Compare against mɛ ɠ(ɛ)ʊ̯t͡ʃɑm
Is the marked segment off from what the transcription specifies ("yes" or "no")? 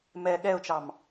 no